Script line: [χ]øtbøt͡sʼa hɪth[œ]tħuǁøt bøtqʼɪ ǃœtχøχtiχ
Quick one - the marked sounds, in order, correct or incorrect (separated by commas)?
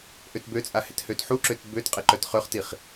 incorrect, incorrect